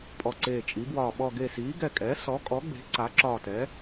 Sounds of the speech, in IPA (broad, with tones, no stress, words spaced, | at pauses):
pʼɔ˧˩ǀeː˧˩t͡ʃʼi˩˥bwɒː˧˩ ɓɔ˧˩ɡe˧˩siː˩˥ ɡɛ˧˩kʼɛː˩˥ sɔ˩˥kʼɔ˩˥ɡ͡be̤˩˥ ǀa˩˥ǁɒː˧˩tɛ˩˥